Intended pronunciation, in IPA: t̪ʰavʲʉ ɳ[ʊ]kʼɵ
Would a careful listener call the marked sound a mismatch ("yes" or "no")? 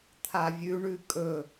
yes